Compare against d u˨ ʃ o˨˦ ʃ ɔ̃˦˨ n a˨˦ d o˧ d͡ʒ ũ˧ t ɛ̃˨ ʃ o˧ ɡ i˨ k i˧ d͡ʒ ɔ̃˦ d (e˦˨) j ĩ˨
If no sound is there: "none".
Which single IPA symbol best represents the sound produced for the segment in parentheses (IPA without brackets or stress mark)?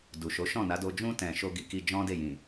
e˦˨